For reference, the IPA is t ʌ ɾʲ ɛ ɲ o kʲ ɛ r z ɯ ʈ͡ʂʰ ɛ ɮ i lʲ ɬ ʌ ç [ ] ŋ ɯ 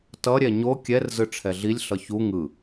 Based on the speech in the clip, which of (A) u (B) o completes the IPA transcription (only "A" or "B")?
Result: A